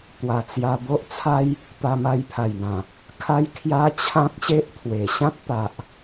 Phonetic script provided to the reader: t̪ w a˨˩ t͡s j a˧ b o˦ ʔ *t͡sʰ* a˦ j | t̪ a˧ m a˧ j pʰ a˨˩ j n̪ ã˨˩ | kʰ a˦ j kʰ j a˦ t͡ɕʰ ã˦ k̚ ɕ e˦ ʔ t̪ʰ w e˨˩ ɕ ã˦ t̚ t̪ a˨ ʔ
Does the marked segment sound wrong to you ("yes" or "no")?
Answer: no